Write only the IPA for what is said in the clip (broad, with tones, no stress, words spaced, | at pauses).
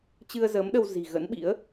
t͡ɕɨ˧ə̯zə˨˦mɗə˧w zi̤˨˩ɣə̰˧˥nɓḭ˧˥ə̯